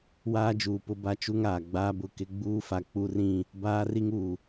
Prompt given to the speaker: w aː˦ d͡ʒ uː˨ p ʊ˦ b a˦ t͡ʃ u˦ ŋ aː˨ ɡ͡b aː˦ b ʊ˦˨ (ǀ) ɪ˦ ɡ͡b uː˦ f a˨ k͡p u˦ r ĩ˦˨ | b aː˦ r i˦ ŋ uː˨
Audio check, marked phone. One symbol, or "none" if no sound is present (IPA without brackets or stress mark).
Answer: k